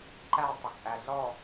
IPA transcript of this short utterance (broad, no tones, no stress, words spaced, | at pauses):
ǃæ tˤəkʔæ ɮɔ